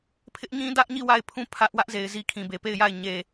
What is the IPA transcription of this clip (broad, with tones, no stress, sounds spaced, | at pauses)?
pʰ ɪ˦ ʔ ɲ ĩ˦ d ä˦ ʔ ɲ i˦˨ w a˦˨ ɪ̯ pʰ ũ˦˨ pʰ ä˦ ʔ w ä˦ ʔ z e˨ ɪ̯ z i˨ kʰ ĩ˨ b e˨ p e˦˨ ɪ̯ j a˦˨ ɪ̯ ɲ e˨